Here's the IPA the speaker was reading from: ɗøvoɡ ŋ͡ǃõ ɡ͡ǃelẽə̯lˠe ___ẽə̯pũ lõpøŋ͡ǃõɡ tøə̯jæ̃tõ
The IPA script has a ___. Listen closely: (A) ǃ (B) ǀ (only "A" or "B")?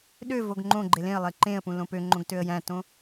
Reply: A